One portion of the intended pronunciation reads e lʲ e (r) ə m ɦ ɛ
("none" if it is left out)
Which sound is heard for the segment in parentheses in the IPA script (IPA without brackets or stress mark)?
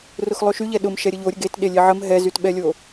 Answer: ʕ